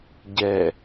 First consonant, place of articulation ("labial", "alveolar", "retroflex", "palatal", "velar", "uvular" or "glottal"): palatal